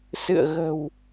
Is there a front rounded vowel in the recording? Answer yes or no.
no